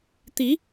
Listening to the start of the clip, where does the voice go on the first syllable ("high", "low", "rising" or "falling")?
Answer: rising